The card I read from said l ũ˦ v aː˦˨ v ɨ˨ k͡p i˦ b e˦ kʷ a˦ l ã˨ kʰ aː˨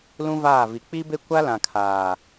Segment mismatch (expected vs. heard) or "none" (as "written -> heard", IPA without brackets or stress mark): ɨ˨ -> i˨